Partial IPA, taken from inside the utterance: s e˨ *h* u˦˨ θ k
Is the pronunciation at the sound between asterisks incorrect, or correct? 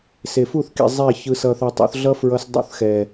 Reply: incorrect